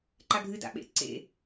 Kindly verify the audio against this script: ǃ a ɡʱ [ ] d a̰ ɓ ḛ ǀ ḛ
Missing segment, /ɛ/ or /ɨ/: ɨ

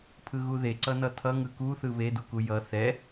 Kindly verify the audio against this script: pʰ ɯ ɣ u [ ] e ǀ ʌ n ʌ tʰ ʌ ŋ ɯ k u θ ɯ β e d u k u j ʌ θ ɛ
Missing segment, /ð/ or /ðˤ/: ð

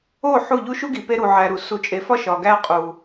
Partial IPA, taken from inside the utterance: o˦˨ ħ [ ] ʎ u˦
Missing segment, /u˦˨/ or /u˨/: u˦˨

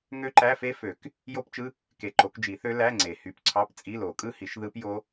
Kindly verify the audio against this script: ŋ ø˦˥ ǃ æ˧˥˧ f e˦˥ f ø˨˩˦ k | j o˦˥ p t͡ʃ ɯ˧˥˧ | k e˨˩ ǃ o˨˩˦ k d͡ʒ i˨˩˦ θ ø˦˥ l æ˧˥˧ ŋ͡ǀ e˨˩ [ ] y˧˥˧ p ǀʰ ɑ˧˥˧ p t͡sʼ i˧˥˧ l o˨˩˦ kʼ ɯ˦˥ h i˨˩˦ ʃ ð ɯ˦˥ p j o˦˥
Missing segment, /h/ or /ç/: h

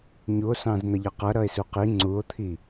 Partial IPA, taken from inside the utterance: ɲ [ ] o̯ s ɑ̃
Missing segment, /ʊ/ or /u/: u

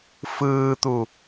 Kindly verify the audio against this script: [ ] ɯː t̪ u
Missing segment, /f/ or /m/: f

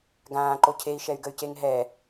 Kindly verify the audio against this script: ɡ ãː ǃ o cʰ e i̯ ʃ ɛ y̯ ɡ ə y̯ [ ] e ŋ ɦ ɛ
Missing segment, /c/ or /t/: c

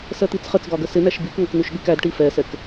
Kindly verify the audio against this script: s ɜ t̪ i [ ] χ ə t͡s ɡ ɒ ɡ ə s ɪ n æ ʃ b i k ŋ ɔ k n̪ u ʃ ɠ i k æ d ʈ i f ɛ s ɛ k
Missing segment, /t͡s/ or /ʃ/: t͡s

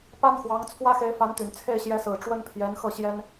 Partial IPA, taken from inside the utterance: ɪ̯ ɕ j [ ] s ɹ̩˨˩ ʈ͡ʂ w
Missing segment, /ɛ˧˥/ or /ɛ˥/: ɛ˧˥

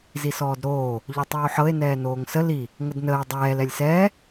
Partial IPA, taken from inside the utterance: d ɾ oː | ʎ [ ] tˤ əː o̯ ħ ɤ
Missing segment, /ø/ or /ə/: ø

